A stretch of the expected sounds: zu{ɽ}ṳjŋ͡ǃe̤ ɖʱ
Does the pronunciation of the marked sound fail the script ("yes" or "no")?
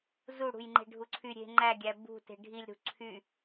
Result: no